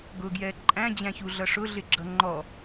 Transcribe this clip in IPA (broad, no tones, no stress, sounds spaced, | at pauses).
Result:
ɡ ʊ ɡ j ɛ ǃʼ æ̃ d͡ʑ æ̃ ç u ɮ ʌ ʂ ʊ ɮ ɪ ɡ͡ǁ ʌ ŋ͡ǃ ɔ